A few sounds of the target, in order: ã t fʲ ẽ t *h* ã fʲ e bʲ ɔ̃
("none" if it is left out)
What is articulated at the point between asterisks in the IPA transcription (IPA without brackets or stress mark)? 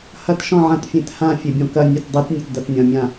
h